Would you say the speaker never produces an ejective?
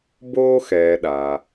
yes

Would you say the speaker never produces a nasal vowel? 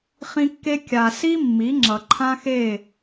no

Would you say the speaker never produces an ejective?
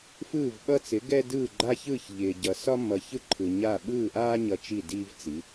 yes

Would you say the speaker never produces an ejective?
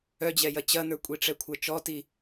no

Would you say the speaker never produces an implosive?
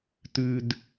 yes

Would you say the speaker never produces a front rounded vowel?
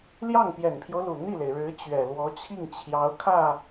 yes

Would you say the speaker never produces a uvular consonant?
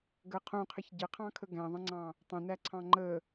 no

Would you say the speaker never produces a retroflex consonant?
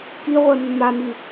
yes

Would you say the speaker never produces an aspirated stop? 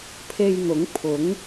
no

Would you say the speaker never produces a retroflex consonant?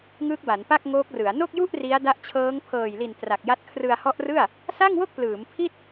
yes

